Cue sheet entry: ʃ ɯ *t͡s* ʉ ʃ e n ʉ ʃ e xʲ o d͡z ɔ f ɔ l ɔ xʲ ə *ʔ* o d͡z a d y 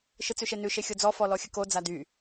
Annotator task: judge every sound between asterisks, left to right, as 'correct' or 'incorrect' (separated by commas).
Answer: correct, incorrect